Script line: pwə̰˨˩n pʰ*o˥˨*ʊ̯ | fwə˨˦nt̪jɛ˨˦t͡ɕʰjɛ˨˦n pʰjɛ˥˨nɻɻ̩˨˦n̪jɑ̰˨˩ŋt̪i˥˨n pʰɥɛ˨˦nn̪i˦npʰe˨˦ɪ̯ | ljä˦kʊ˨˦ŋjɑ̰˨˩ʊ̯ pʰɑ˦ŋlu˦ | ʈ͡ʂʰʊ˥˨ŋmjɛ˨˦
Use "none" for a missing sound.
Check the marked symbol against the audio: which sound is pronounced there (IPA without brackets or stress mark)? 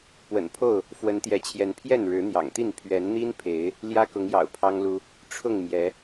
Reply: o˥˨